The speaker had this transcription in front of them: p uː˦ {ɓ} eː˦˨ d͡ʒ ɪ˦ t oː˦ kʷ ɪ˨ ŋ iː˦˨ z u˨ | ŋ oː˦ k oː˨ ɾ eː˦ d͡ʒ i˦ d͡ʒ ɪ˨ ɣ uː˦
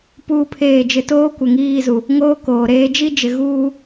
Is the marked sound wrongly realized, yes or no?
yes